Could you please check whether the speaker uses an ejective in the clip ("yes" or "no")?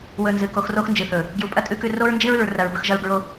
yes